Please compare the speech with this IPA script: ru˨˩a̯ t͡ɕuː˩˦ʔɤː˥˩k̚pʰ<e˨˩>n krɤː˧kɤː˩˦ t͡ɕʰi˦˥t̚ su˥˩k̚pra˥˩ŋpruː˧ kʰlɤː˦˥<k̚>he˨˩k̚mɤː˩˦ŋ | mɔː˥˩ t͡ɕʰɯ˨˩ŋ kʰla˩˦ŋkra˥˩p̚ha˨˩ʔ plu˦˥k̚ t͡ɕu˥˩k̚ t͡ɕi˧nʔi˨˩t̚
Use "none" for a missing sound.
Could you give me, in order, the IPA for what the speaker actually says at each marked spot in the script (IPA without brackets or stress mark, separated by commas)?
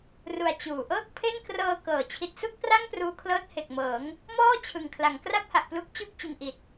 e˥˩, t̚